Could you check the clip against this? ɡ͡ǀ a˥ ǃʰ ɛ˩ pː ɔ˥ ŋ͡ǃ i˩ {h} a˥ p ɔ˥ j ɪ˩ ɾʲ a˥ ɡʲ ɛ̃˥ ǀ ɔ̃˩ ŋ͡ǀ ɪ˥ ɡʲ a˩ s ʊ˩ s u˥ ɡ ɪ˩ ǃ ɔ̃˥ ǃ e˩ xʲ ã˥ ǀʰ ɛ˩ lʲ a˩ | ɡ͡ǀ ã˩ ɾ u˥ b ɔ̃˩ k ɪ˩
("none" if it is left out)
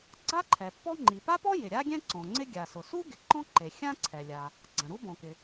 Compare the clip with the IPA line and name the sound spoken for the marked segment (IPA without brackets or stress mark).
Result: p